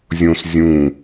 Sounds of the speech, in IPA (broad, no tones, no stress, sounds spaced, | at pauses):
zʲ õ s zʲ ũ